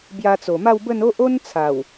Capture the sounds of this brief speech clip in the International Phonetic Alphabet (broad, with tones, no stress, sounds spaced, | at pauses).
b j a˧ t͡s o˨˩ m a˥˧ w b ə˥˧ n o˦ ʔ o˦ n t͡sʰ a˨˩ w